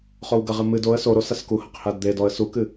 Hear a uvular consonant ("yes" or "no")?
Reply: yes